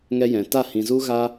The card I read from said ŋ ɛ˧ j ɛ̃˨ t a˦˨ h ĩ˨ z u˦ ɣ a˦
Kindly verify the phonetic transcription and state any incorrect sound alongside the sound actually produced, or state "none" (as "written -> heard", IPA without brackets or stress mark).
none